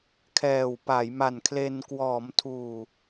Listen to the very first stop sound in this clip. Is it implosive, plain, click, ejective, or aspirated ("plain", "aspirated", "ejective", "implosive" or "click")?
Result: aspirated